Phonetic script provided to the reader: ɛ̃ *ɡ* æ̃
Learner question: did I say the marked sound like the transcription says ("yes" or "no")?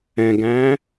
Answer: yes